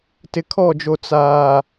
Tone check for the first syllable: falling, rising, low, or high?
low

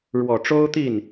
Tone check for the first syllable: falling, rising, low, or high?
low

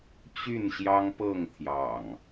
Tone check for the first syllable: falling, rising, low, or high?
falling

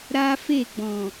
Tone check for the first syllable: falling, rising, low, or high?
high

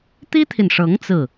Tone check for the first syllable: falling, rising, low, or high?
high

